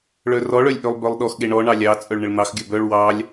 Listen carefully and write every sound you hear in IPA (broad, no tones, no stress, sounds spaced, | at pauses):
ɭ œ r ɔ ɭ œ lʲ ʔ ø lˠ b œ lˠ ɗ ɔ x ɠ e ɳ ɔ ɳ ɑ lʲ ɑ t͡sʼ œ ɭ ɳ ə ɭ n̪ ɑ x ɡʲ œ b œ ɭ w ɑ lʲ